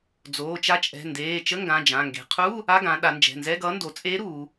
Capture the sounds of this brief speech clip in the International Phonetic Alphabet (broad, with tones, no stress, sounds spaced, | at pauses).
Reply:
d͡z oː˩˧˩ t͡ʃ a˧˥ t͡ʃʼ ɛ̤˩˧˩ n d eː˩˧˩ t͡ʃ ə˧˥˧ ŋ ɡ ã˩˧˩ d͡ʒ ã˩˧˩ ŋ ɡ e̤˩˧ qʰ u˧˥˧ | a˧˥˧ ɡ ã˩˧ ɗ a˩˧ n d͡ʒ ɛ̤˩˧˩ n z ɛ˧˥˧ ɡ ʌː˧˥ n d o˩˧ t͡sʼ eː˧˥ ɾ uː˩˧